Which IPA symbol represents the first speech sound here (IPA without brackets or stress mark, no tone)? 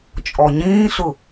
t͡ʃʼ